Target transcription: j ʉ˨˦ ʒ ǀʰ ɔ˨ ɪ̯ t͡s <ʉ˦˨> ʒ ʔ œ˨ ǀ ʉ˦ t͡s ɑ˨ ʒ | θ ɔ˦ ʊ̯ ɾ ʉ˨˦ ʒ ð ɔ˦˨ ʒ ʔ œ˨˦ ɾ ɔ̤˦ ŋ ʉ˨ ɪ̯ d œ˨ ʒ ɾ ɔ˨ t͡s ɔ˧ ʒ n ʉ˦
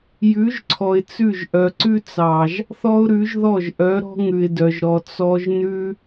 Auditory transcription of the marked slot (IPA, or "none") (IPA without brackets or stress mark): ʉ˦˨